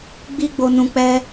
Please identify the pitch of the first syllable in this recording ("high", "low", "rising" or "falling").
high